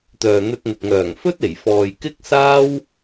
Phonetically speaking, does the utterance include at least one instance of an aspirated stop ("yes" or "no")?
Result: no